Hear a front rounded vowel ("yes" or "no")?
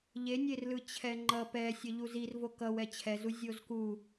no